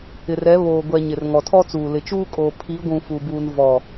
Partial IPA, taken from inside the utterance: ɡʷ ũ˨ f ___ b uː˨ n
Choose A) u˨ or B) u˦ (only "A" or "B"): A